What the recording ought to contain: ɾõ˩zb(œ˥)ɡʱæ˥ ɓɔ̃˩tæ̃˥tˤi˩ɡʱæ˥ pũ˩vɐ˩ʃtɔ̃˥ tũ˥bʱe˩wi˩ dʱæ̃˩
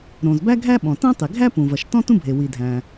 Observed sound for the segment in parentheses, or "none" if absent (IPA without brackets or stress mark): æ˥